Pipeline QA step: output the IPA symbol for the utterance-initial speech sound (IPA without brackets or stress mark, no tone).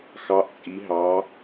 x